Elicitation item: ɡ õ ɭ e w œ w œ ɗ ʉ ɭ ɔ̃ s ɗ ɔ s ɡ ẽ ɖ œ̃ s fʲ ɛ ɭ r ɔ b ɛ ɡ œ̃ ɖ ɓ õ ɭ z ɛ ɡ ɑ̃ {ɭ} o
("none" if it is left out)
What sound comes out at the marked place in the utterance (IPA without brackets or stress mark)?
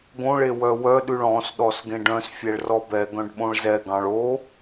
ɭ